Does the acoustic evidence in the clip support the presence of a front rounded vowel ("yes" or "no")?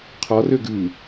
yes